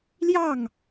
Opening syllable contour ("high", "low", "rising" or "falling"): falling